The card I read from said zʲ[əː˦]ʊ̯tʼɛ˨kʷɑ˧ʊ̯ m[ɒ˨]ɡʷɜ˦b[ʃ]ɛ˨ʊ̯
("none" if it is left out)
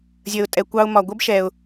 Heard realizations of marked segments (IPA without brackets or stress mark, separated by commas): əː˨, ɒ˨, ʃ